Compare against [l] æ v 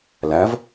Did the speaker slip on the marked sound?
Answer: no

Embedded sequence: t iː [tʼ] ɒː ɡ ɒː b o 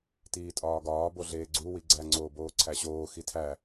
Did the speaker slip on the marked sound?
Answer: no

